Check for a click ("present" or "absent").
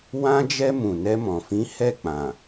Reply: absent